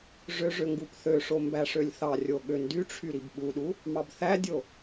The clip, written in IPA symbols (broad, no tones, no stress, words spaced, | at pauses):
ʐøʐø ŋɡupθøʂo mbæʂølʲθɑrʲo ɠøndyʈ͡ʂʰy ɾibɓuɗu | mɑbθædʲo